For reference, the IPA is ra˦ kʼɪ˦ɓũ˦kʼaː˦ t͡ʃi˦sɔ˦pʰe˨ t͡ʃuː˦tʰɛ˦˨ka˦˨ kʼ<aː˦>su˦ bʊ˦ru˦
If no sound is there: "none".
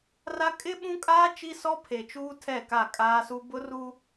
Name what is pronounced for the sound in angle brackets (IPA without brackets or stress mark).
aː˦